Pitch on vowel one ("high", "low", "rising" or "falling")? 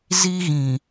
high